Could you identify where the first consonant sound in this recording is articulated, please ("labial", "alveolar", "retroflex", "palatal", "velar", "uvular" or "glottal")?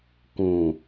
velar